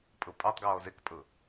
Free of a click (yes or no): yes